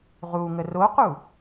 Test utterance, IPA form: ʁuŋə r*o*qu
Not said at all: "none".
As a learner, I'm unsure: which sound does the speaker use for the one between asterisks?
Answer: o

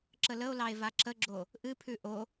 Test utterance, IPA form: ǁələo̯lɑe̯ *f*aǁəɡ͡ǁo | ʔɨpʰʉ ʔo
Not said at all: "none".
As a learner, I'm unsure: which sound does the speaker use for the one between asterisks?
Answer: v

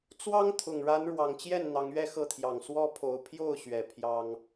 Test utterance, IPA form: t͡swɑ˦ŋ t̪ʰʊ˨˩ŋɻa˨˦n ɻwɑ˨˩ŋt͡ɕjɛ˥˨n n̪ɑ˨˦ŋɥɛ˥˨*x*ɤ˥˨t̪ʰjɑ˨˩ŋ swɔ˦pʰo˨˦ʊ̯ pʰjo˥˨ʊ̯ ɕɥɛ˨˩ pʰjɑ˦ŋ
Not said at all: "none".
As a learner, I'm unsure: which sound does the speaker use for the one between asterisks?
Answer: x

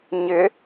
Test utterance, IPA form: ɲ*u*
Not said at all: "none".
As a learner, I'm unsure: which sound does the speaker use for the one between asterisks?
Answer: ʏ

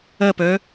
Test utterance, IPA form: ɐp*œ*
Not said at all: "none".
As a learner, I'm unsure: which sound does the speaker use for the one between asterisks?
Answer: œ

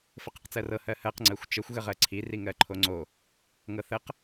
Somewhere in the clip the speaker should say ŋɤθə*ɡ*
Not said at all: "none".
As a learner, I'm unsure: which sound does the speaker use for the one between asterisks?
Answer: q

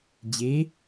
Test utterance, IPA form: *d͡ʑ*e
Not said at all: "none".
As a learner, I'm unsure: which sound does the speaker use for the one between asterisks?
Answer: d͡ʑ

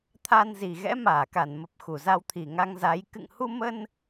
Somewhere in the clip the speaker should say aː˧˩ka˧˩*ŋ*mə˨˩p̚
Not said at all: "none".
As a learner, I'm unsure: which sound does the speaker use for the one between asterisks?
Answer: n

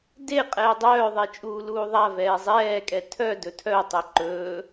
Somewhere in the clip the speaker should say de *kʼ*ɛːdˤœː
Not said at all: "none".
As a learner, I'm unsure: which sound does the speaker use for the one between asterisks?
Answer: qʼ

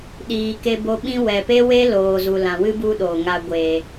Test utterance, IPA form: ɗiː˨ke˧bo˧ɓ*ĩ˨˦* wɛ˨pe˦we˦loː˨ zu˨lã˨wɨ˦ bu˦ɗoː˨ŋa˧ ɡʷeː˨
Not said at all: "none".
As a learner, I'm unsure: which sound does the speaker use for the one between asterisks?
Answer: ĩ˦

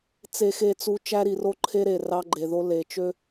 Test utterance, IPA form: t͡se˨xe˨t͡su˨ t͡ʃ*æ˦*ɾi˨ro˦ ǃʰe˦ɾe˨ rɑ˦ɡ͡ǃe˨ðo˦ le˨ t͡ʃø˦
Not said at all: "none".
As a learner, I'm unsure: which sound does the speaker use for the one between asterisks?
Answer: æ˦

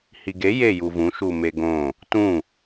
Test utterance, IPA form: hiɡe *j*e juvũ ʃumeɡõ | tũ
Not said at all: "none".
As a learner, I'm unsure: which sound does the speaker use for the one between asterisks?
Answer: j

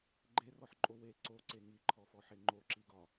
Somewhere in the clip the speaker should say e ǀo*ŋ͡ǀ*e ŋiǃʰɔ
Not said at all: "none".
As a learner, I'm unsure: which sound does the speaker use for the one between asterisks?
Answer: ǀ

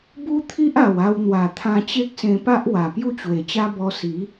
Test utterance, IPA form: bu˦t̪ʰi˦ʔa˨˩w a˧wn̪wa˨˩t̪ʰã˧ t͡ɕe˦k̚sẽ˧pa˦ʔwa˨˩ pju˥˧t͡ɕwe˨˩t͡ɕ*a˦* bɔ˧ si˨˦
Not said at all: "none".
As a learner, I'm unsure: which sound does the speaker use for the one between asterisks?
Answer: a˦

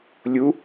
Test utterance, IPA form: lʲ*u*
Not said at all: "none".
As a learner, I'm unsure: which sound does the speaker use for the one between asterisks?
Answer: u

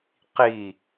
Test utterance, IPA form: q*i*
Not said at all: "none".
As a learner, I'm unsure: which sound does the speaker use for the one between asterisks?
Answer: i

